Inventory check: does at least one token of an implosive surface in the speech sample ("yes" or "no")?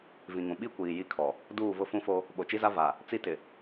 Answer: yes